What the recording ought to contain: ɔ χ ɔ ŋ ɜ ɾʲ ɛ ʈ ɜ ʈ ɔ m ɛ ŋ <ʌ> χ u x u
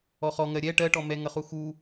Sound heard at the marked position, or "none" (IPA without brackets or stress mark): ʌ